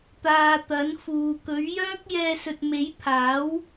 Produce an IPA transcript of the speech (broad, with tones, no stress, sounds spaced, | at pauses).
t̪ aː˧ t̪ ɐ˨˥ n f uː˨ k ɵ˨˥ ɥ j œː˥ k̚ j ɛː˧ s ɵ˨ t̚ m e˨˥ j pʰ aː˨˥ w